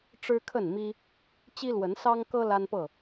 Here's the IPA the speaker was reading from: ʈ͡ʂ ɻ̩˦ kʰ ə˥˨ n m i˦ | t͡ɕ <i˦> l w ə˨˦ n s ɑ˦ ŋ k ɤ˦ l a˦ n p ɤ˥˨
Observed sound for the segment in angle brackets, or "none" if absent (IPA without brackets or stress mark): i˦